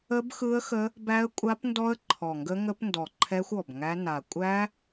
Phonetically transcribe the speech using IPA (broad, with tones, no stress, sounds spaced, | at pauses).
ə˦˥ b x ɯ˦˥ ə̯ x ə˦˥ | b æ˦˥ ə̯ kʷʼ a˦˥ p n d ɔ˦˥ ə̯ ǃʰ ɔ˨˩ ŋ ɡ ə˦˥ ŋ ə˦˥ p n d ɔ˨˩ ǃʰ ɛ˦˥ xʷ ɔ˨˩ b ŋ æ˦˥ n a˨˩ kʷʼ æ˦˥